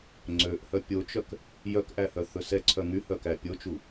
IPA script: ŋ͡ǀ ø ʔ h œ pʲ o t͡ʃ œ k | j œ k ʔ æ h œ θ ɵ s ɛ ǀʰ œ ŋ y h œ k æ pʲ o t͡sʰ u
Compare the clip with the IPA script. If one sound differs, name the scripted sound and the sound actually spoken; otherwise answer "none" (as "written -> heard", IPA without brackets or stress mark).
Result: t͡sʰ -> t͡ʃ